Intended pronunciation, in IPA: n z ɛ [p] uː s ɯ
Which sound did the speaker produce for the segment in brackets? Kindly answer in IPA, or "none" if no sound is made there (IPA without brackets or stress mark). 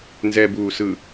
b